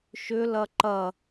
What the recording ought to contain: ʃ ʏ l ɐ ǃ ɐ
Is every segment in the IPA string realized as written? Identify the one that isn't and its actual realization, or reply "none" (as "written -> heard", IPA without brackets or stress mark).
none